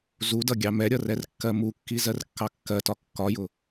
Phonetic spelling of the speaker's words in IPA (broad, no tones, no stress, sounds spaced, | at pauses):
z u d ʌ ɡʲ ɑ m ɛ ɾʲ ʌ r ɛ r kː ɜ m u kː i z ɜ r kː ɑ kː ɜ t ɒ kː ɒ j ʊ